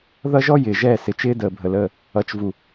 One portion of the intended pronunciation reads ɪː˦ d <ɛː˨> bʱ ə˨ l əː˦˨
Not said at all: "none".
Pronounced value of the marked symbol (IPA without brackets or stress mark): əː˨